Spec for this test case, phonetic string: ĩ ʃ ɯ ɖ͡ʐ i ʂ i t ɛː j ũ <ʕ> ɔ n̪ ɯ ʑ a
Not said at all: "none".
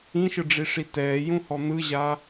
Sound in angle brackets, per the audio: h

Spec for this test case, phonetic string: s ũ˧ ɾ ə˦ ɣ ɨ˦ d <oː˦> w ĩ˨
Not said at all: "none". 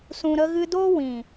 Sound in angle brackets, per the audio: oː˦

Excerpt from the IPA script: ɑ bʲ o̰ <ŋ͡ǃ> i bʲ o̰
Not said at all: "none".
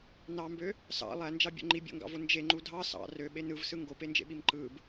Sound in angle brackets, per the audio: ŋ͡ǃ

